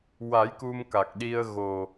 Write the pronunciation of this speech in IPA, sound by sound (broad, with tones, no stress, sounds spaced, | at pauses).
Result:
w a˨˩˦ j k u˧ m k a˨˩ k̚ ɗ i˧ ə̯ ɣ o˨˩